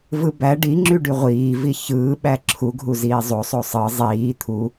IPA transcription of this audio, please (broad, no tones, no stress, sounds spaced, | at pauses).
v ɯ b æ ɖ i ŋ͡ǁ y ɖ y ʁʷ iː v i ç ɯː ɓ æ ǁʰ u ɡʱ u z iː zˤ o sˤ o sˤ ɯ zˤ iː t̪ʰ u